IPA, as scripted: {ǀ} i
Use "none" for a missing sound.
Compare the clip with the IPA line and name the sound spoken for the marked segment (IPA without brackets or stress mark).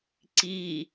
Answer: ǀ